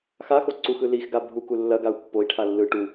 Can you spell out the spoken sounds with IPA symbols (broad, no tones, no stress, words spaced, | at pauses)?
xaxo ǀuxɯ lixɡa bʱuku lːɐɡau̯ pːoi̯ʈʰa lːɯ ʈu